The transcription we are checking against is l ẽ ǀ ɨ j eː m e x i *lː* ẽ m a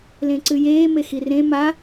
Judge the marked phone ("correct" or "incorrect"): incorrect